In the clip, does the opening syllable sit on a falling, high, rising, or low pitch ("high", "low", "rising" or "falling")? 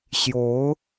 rising